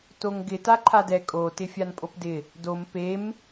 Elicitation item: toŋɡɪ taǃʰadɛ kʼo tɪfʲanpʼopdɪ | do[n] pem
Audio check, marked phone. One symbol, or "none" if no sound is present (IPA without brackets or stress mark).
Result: m